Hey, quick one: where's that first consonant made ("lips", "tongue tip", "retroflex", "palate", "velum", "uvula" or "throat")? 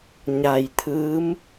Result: palate